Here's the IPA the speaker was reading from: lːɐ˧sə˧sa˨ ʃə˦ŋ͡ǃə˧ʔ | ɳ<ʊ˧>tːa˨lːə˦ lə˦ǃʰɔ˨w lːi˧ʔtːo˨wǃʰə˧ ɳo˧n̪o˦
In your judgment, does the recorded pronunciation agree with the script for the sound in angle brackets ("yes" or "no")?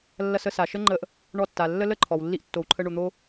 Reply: no